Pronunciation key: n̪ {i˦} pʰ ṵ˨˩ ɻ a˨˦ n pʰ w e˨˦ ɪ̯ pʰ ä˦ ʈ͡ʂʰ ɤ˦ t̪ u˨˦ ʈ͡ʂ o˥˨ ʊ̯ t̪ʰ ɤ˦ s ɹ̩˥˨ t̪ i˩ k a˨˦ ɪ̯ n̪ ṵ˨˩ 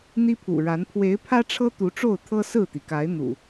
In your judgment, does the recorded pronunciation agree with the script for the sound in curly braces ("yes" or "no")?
yes